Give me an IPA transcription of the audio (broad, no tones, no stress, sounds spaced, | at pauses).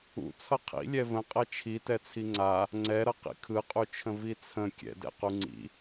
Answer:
ṵ t͡sʰ ʌ qʰ ḭ lʲ ɛ v ə̃ qʼ ɛ t͡ʃʰ i t ɛ t͡sʰ i ŋ͡ǀ a | ŋ͡ǀ ɛ ɾ ʌ q ḭ kʰ ɯ qʼ u t͡ʃʰ ə̃ v i t͡sʰ ə̃ kʲ ɛ̰ d ɛ̰ q u ŋ͡ǀ ḭ